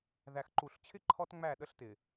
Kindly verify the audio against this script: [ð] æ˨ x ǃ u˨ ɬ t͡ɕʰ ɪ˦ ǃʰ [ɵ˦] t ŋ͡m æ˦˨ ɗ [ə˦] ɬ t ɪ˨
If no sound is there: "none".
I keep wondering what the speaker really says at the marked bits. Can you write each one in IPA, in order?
ð, ɔ˦, ə˦

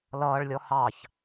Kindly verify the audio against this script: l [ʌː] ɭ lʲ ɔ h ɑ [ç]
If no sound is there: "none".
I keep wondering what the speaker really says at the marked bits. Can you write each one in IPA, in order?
ʌː, ç

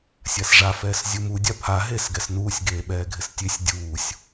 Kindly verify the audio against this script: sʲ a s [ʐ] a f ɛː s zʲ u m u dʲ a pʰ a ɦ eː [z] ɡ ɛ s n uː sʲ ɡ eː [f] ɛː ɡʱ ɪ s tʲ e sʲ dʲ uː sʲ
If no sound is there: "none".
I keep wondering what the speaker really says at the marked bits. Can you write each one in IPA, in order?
ʐ, s, ɓ

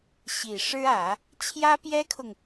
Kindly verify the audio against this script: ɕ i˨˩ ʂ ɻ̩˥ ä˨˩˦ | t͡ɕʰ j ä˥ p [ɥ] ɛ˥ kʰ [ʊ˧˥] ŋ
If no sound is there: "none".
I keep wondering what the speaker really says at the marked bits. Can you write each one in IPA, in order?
j, ʊ˨

